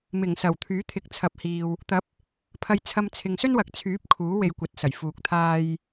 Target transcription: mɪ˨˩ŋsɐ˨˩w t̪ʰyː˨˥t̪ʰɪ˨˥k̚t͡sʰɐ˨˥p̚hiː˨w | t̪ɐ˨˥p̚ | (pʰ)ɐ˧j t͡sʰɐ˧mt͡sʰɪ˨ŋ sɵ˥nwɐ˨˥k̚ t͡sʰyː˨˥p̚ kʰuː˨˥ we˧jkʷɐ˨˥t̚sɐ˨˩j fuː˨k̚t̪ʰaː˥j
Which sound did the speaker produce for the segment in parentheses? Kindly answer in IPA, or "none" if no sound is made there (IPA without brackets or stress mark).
pʰ